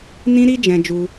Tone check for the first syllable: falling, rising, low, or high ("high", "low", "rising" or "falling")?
high